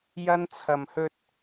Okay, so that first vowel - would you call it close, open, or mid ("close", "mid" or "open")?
open